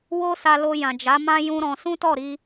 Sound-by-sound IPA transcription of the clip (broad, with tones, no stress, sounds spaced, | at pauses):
w o˦ s a˧ l o˧ j ã˨ d͡ʒ a˨˦ m ã˦ j ũ˦ ɾ ɔ̃˧ s ũ˦ t ɔ˦˨ ɾ i˧